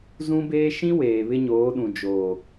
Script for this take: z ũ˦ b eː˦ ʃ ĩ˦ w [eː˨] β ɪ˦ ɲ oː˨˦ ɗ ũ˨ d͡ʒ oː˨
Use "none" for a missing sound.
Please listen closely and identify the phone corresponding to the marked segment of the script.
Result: eː˨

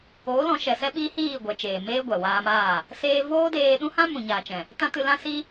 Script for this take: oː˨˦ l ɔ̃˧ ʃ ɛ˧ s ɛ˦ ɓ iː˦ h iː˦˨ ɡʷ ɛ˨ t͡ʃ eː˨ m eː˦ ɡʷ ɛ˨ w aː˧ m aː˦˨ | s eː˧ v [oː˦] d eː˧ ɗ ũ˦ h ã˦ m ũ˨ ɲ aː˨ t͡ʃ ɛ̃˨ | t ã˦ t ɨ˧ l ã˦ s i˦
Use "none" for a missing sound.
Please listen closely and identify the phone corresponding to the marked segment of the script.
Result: oː˦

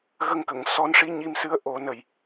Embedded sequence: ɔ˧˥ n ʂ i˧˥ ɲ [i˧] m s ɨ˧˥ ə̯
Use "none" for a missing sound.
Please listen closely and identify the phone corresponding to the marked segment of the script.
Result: i˧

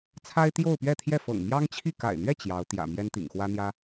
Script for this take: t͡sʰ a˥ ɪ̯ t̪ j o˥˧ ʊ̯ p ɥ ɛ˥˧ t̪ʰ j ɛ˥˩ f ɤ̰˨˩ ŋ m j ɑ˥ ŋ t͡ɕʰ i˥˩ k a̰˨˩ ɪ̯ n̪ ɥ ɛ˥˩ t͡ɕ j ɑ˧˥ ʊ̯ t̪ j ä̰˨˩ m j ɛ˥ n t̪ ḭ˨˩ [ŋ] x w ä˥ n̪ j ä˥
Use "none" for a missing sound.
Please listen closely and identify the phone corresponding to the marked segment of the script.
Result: ŋ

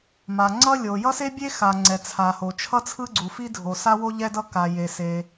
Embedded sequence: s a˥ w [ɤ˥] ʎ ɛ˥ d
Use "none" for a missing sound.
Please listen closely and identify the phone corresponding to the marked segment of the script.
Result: o˥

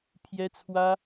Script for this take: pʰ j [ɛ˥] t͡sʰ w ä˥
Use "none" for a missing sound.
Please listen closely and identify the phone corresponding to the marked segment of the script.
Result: ɛ˥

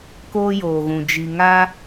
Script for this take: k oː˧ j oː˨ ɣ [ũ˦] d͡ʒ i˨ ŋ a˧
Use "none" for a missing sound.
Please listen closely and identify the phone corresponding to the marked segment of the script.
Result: ũ˨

